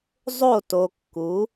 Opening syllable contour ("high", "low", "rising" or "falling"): falling